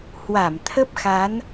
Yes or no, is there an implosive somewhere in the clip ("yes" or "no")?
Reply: no